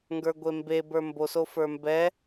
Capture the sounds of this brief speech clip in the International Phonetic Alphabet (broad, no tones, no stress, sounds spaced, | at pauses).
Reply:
ŋ ɡ ə˞ ɡʷ e m b e b ə˞ m b o s o f ə˞ m b ɛ